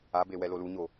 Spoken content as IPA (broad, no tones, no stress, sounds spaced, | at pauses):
a b e w ɛ l o l u ɲ o